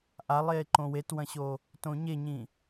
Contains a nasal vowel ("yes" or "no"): yes